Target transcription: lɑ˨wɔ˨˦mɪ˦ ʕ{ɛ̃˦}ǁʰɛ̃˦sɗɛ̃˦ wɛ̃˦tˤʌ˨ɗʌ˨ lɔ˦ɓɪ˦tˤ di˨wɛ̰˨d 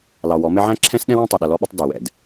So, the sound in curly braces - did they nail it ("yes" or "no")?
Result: no